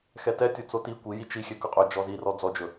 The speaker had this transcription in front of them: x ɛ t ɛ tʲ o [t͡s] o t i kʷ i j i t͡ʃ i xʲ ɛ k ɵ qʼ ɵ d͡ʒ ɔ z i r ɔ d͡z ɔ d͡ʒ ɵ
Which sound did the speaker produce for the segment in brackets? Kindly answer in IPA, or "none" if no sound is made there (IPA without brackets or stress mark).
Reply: t͡s